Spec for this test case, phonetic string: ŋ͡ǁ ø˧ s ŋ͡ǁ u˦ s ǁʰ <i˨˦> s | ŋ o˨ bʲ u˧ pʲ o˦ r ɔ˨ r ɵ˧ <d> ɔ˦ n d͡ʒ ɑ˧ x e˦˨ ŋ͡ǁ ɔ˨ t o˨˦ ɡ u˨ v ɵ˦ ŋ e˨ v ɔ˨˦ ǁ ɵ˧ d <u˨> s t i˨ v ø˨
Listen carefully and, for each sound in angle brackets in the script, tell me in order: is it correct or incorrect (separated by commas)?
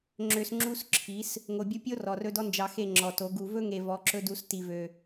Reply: correct, correct, incorrect